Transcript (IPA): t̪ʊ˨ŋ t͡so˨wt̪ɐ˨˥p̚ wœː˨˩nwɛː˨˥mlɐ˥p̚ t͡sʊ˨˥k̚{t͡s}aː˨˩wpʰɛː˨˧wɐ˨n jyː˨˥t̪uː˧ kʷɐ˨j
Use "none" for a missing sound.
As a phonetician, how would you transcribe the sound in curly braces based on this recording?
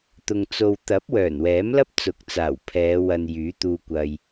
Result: t͡s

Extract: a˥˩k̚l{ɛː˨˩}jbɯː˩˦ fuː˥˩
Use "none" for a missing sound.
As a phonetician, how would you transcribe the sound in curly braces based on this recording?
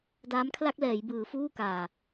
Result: ɛː˩˦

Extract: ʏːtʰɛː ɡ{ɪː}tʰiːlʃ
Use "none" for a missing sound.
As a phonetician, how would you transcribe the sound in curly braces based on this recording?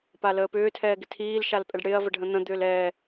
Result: ɪ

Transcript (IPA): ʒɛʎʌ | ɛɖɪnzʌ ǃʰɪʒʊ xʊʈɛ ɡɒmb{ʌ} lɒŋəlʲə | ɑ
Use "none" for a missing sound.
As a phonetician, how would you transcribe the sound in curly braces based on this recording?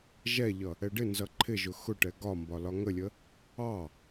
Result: ɒ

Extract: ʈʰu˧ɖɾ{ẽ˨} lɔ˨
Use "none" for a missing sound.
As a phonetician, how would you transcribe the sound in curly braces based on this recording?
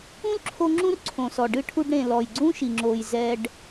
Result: ẽ˨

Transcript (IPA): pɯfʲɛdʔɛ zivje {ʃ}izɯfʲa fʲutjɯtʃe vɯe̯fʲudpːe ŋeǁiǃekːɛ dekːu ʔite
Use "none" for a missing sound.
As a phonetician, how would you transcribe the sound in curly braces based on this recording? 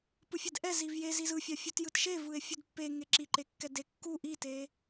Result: z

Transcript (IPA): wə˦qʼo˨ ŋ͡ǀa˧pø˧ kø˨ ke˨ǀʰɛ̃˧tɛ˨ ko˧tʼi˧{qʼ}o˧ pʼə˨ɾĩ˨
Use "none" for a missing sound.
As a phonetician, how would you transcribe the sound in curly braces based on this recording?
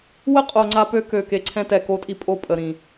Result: pʼ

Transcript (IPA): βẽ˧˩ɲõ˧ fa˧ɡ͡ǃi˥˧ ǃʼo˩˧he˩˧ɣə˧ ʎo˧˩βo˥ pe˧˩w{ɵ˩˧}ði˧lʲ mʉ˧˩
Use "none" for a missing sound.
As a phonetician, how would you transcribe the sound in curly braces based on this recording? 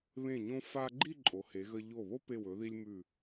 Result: ɵ˩˧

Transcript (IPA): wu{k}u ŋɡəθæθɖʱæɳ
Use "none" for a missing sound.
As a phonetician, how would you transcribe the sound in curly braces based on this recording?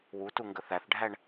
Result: t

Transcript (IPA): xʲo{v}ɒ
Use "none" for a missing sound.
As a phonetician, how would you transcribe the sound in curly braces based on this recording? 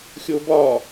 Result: b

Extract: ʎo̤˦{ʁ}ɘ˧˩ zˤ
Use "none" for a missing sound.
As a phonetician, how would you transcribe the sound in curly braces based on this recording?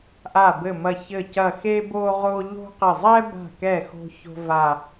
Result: q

